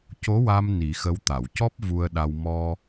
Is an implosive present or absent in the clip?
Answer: present